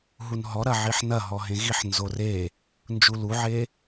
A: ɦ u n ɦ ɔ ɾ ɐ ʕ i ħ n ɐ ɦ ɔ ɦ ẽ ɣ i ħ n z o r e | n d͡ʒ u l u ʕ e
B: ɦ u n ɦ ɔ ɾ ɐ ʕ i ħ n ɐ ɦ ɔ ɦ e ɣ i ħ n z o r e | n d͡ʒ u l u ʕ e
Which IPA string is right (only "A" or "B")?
A